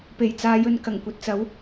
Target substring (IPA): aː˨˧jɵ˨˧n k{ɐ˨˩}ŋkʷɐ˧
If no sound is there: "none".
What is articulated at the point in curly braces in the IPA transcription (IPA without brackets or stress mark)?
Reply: ɐ˨˩